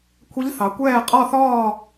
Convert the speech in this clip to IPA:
kʷʰ ɛ˦˥ ʎ θ ɑ˨˦ kʷ ɛː˥˧ qʼ ɒ˥˧ θ ɒː˥˧

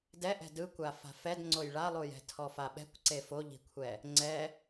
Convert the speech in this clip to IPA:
d ɛ ʔ ɛ̤ d ɯ kʷ a f a̤ f ɛ d ŋ͡ǀ o j ɭ a lˠ u j ɛ̤ tʰ ɔ f a ɓ ɛ̤ kʷ ǀ e f o ʎ i̤ kʷʰ ɛ | ŋ͡ǀ ɛ

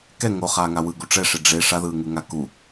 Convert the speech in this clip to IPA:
k ɛ ŋ o χ aː ŋ a w ɯ ɡ u ʈ͡ʂ ɛ ʂ e ɖ͡ʐ e ʂ a ð ɯː ŋ u ŋ a k u

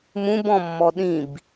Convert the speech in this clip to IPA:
m ũ b ɔ̃ mː ɔ ɗ ĩ b

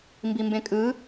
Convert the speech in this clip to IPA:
m b i m b ẽ kʼ ɯ

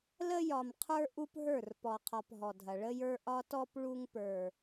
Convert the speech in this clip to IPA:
l ə˦ j ɒ˨ m qʰ ə˞˦ ʔ u˦ p ɦ ə˞˦˨ r p ɔ˨ qʰ ɒ˨ p ɦ ɔ˨ dʱ ɐ˨ ɭ ə˦ j ə˞˦ ʔ ɒ˦ t ɔ˦ p ɭ u˦ ŋ p ə˞˨

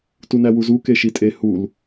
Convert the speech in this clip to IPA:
t u n æ w u z u k e ʃ i tʼ e h u l

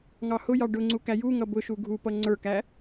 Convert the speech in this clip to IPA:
ŋ ɑ h ʊ j ɑ ɖ ʊ ŋ͡ǀ u k æ j u ŋ ʌ b ʊ ʃ u ɡʱ u p ʌ ŋ͡ǀ ə˞ k æ

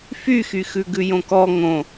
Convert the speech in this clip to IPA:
f y x y x ʉ ɡ ʉ j õ k ɔ ŋ õ

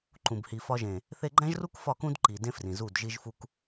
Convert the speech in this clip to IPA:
ǃ ũ˨ b h i˨ f ɒ˧ ʒ ẽ˨ | θ e˧ ɡ͡ǃ æ̃˦ ʒ r u˦ k f ɒ˦˨ k ũ˦ d ǃ i˨ d ẽ˦ f r ĩ˨ z u˦˨ d ʒ i˦ ʒ f u˦ k

